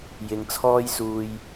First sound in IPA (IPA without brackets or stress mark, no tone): j